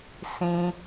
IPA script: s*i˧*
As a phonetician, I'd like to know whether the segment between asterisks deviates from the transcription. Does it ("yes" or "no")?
yes